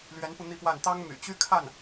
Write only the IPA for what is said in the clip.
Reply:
lɥɛ˧˥npu˧ n̪i˥˧pwa˥˩n t̪ɑ˥ŋmy̰˨˩t͡ɕy˥ kʰa˥˩n

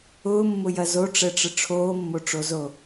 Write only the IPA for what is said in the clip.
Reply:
ʊːmːʊjɐ zoʈ͡ʂɛʈ͡ʂə ʈ͡ʂʰoːmːoʈ͡ʂozo

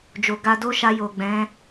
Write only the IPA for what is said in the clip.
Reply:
d͡ʒo˨ɡa˧do˦ʃa˧ jo˨ɡ͡bɛ̃˨˦

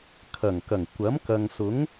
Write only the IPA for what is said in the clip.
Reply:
kʰɐ˨˩ŋkɐ˨˩ŋ kʷɐ˨˥mkɐ˨ŋ sʊ˨˥ŋ

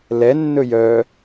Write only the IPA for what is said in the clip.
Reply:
lɛ nːɵjœ

